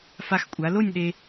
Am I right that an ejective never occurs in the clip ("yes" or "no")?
no